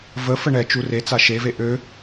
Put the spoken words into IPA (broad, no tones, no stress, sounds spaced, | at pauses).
v ə f ə ɳ ɛ t͡ʃ u r e t͡s a ʃ e v e ʔ ø